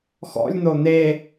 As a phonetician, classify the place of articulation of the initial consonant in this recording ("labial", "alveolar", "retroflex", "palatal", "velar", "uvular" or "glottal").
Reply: velar